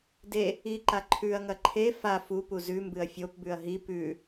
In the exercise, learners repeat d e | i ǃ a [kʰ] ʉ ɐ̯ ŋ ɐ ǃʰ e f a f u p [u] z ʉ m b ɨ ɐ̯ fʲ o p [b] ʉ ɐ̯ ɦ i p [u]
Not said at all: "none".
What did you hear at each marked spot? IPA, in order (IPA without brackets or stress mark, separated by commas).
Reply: ǃʰ, u, b, ʉ